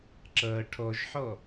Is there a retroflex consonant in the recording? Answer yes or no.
yes